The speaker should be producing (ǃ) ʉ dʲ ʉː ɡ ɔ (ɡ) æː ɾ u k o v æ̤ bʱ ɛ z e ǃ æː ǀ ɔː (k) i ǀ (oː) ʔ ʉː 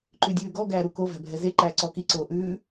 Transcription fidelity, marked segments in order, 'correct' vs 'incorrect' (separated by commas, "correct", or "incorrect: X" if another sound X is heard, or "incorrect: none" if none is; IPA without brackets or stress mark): correct, correct, correct, correct